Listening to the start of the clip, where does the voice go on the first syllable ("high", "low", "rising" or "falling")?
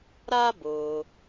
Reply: high